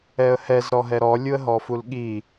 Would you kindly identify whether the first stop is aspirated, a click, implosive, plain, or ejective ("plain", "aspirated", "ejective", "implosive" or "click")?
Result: implosive